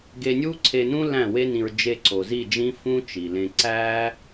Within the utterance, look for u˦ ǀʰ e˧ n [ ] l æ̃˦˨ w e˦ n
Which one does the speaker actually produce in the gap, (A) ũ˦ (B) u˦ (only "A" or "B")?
A